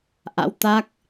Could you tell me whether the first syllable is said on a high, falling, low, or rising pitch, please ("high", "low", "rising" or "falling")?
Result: rising